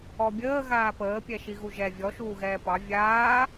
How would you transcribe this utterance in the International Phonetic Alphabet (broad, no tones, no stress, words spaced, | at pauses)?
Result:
ɔbʲəː ɣaːpəː pʲɛʃiɣuʒɛ vʲɔ ʃuːɣɛːpɑ vʲaː